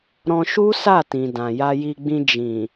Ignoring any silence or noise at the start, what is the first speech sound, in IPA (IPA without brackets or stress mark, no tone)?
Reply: ɾ